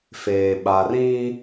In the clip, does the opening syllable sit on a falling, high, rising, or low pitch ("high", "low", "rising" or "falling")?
low